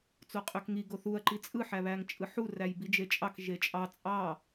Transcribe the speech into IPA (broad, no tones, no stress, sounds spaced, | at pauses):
t͡s o qʼ ø k ŋ i ɡ o θ u ɐ̯ ǃ i t͡sʼ ɯ ħ æ β æ ŋ t͡ʃʼ ɯ ħ u r æ j b i d͡ʒ e t͡ʃʼ ɑ k ʒ e t͡ʃʼ ɑ t͡sʼ ɑ